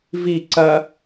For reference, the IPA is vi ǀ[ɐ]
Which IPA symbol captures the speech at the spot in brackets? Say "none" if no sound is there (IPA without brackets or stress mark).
ɐ